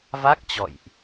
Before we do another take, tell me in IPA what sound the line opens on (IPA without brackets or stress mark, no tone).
v